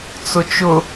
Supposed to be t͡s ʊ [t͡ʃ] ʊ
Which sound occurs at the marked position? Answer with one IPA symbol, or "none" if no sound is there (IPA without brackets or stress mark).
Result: t͡ʃ